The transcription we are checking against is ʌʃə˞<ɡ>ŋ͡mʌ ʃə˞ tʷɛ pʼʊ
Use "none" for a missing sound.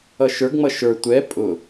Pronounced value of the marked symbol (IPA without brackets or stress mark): ɡ